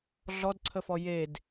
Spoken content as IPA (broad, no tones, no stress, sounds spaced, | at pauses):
ɮ ɔ d ǀʰ ə f ɔ j e d